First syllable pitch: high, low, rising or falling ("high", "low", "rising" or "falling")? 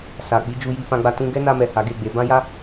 low